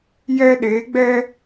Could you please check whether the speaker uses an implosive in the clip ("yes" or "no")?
yes